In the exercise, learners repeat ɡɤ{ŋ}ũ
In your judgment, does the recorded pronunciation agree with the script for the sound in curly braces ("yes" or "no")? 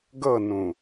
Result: no